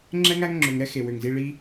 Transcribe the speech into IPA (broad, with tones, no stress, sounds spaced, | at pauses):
ŋ͡ǁ ɛ˦ ŋ æ˦ ŋ ŋ͡ǁ ø˨ ŋ ɾ ɛ˦ x e˨ w ø˨ ŋ z i˧ ɭ i˦